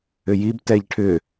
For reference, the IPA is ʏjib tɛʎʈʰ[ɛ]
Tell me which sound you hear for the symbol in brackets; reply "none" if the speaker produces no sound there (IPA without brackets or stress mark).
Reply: ʏ